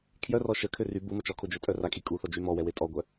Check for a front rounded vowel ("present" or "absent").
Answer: present